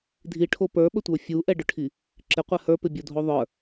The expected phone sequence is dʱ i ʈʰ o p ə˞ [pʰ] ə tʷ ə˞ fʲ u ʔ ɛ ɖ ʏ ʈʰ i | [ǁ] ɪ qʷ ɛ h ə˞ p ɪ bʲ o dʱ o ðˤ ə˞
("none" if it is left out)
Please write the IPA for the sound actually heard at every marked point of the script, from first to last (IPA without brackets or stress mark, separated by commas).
ɓ, ǁ